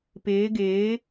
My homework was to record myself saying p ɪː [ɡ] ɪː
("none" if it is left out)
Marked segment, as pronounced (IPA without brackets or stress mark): ɡ